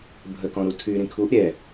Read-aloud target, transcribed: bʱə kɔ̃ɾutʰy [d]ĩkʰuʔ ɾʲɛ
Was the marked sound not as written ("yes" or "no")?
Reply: yes